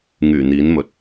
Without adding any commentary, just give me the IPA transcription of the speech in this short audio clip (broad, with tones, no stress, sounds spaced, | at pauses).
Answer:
ŋ yː˨˩ n̪ iː˨˥ n m ɵ˨ t̚